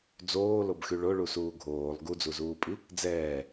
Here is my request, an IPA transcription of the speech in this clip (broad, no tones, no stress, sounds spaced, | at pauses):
d͡z oː l o b x y ɭ o ɭ u s uː ɡʱ oː lˠ ɡ u d͡z u z uː pʼ i | d͡z ɛː